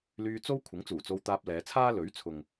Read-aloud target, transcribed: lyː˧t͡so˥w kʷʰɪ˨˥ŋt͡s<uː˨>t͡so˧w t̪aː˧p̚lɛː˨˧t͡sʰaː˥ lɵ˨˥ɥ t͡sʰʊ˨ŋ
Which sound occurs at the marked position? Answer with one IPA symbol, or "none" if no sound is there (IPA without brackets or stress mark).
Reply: uː˨˩